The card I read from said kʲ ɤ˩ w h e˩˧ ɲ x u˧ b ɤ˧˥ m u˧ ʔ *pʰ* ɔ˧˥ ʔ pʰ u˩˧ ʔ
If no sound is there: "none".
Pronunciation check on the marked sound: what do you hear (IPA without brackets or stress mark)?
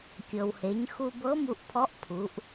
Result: pʰ